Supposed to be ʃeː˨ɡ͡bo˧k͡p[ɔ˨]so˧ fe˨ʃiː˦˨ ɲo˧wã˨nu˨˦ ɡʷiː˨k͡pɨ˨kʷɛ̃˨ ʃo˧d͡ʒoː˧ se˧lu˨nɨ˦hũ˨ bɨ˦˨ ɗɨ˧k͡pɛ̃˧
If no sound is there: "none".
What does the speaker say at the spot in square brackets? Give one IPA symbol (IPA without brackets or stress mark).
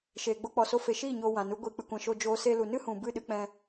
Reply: ɔ˨